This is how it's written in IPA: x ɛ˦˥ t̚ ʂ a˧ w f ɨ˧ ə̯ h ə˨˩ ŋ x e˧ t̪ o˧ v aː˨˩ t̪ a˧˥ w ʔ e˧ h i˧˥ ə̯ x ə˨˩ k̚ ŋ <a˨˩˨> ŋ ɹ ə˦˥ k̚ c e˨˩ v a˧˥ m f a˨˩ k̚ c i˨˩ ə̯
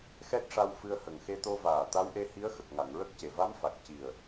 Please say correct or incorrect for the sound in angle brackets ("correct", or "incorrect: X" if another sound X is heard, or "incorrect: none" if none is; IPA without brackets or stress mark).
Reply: correct